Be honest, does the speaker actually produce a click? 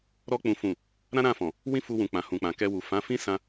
no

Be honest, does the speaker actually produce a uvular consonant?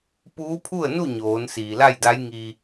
no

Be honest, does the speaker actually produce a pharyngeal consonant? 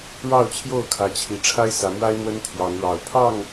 no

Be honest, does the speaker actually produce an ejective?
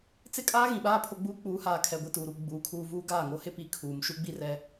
yes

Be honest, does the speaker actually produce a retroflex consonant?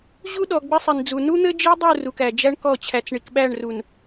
yes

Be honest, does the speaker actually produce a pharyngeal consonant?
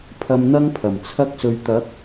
no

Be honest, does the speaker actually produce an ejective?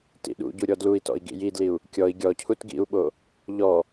no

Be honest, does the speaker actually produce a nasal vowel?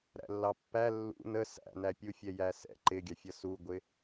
no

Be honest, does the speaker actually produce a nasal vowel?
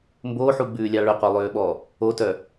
no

